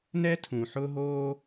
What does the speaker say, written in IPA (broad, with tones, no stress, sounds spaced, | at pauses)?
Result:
n ɛ˥ tʰ ũ˨ ħ ʊː˦ ɦ oː˦